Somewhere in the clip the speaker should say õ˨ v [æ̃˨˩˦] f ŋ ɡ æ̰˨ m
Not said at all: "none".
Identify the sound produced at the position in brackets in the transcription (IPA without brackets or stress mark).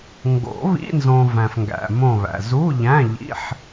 æ̃˨